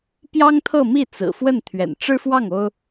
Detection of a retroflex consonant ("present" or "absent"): present